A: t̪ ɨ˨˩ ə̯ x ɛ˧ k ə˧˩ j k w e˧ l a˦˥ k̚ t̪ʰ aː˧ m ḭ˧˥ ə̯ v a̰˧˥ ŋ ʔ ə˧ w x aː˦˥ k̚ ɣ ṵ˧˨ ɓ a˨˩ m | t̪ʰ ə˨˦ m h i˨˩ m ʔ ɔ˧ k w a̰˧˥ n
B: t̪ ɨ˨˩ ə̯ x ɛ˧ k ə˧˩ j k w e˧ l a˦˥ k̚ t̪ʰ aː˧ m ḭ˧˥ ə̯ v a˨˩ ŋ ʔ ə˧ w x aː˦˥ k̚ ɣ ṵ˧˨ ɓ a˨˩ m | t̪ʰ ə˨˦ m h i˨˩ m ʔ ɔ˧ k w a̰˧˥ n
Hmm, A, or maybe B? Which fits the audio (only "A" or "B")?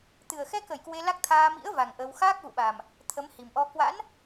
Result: B